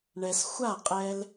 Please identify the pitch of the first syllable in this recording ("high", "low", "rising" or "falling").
low